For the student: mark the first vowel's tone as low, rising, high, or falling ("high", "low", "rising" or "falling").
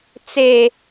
high